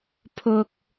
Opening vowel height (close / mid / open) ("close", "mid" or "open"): close